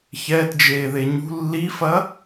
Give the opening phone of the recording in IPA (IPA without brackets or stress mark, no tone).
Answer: ç